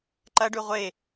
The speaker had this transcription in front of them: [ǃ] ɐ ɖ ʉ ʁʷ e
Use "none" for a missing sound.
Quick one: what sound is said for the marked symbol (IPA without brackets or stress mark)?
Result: ǃ